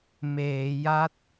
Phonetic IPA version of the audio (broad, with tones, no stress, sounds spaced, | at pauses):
m eː˩˦ j a˦˥ t̚